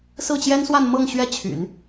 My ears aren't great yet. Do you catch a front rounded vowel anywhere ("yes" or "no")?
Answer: yes